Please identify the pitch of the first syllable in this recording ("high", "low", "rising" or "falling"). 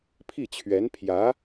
falling